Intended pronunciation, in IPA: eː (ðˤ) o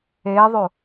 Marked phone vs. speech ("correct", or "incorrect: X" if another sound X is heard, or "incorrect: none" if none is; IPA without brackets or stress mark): correct